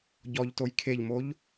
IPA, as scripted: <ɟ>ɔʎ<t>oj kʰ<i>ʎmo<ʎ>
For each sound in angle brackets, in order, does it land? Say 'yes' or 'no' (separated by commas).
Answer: yes, yes, no, yes